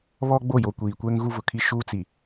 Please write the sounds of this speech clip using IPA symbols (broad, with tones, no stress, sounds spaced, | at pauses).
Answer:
β ɔ˦ ɡ͡b o˦˨ j o˨ kʷ iː˨ kʷ ɛ˦ ŋ ɣ u˦ v ʊ˨ kʰ i˦ ʃ uː˦ t͡s i˨